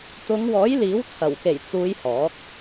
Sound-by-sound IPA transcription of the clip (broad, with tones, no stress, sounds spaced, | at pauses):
t̪ ʊ˨˧ ŋ w ɔː˨˥ j l iː˨˥ w t͡sʰ ɐ˨˩ w k e˨˩ j t͡s uː˨˧ j h ɔː˨˥ k̚